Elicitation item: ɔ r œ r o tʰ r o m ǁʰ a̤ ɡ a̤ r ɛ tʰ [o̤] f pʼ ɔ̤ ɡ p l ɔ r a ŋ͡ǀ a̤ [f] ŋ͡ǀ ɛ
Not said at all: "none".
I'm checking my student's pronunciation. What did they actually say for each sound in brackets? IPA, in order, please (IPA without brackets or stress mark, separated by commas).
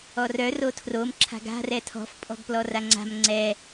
ɔ̤, m